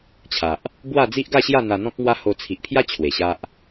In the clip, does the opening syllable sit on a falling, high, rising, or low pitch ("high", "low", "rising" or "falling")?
low